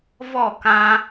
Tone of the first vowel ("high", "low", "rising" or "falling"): falling